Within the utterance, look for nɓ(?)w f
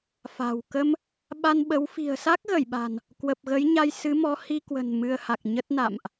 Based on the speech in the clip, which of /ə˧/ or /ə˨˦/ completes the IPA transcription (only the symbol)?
ə˨˦